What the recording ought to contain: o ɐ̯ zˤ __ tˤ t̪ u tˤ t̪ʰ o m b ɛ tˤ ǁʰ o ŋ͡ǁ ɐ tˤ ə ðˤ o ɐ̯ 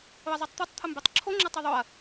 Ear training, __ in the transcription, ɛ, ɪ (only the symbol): ɛ